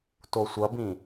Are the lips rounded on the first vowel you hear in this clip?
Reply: yes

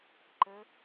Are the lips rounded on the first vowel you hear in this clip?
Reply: no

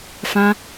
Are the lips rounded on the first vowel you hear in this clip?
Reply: no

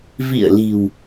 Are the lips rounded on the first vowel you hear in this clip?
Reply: no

